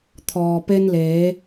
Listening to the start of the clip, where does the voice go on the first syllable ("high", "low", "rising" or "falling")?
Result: low